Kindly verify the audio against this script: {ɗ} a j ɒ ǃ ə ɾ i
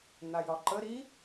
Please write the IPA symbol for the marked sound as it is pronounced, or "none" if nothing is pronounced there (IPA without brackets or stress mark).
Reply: n̪